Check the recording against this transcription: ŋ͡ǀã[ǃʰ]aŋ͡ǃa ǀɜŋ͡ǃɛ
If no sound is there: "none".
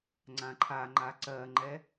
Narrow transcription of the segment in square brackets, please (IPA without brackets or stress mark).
ǃʰ